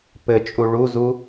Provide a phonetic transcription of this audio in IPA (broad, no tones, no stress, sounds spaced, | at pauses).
p ɘ t͡ʃʼ u ɭ u z u